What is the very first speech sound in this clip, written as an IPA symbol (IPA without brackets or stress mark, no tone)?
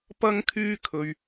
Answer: p